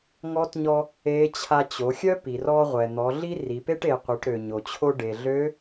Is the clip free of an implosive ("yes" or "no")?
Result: yes